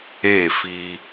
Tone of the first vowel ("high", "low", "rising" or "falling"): falling